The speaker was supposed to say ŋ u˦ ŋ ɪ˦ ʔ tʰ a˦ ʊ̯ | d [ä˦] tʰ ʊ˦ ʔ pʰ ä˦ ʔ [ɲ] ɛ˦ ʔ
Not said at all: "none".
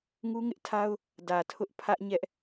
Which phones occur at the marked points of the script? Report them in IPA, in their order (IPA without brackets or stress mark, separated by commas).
ä˨, ɲ